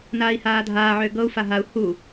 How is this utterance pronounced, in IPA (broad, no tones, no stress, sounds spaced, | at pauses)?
n aː i̯ h aː dʱ aː ʕ ʏː ɡ ɤ u̯ f a ɦ a u̯ h u